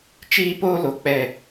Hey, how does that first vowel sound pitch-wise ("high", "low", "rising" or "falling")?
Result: high